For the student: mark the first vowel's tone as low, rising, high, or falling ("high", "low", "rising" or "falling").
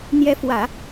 rising